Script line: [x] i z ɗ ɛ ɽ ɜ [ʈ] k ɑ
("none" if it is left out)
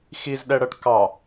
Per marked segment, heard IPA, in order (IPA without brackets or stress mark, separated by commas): x, ʈ